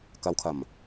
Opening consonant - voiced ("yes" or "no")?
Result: no